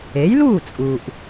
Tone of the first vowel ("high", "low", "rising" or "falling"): rising